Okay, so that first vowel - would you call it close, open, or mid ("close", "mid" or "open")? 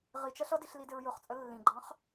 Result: close